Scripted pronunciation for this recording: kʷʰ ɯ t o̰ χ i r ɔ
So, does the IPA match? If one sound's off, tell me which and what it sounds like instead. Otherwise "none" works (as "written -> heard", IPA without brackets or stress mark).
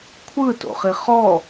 r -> χ